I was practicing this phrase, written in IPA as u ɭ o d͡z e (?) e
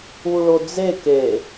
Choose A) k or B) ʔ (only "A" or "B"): A